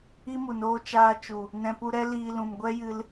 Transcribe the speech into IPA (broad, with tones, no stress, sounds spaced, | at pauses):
i˦ m u˨ n oː˧ t͡ʃ aː˧ t͡ʃ u˨ | n ɛ̃˧ p u˧ ɾ ɛ˦ l iː˧ l ũ˨ m ɡʷ ɛ˦ j ɨ˧ l